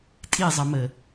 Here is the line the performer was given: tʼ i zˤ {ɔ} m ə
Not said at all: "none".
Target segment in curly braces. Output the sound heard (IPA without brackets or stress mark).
ʌ